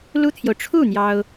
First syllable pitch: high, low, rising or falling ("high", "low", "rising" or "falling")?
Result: high